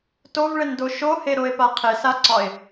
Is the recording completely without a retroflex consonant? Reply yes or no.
no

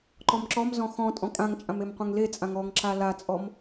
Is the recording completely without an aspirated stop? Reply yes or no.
yes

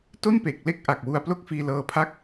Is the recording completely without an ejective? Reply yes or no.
yes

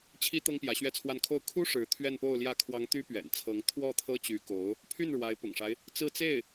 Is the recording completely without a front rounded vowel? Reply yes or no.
no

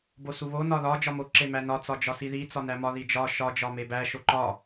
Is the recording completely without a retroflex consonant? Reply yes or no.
yes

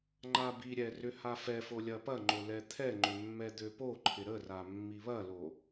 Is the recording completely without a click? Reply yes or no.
no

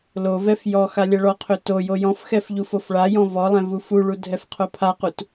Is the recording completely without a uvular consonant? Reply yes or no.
no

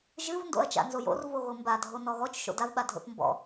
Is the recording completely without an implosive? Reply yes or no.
no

